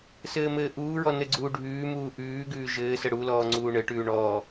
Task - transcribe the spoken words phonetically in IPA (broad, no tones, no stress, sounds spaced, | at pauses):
s ɘː m ɘː ʔ uː ɹ ɔ n ɘ ɡ͡ǀ uː ɖʱ ʉː m uː ʔ ʉː ɡ ʉː ʒ ɘː s ə ɽ u l ɔː ŋ͡ǀ uː ɳ ɘ ʈ ʉː ɳ ɔ